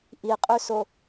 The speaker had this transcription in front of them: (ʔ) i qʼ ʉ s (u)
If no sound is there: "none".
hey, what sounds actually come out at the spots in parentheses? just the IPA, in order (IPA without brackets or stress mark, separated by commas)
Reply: ʔ, o